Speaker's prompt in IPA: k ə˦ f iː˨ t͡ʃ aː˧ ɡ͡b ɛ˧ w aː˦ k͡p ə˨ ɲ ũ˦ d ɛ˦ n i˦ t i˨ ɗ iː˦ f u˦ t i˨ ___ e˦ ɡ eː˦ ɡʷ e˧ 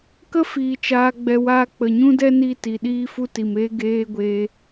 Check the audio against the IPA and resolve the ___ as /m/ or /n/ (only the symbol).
m